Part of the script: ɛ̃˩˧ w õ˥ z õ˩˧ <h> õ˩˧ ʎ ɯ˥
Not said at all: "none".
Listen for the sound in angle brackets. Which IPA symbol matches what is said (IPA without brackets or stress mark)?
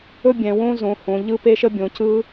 h